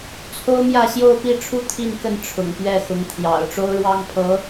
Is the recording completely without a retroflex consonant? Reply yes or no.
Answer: no